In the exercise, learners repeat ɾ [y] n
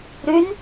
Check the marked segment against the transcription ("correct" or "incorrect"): correct